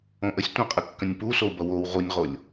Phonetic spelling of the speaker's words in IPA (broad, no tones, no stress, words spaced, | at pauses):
õʔəsʲ tʷə̃qʼəkːə̃nʲ pusou̯bʌ wow ʁunʲʁolʲ